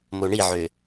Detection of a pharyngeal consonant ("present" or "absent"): present